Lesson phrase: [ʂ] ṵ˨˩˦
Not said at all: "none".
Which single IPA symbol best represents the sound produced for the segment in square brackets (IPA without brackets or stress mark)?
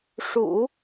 ʂ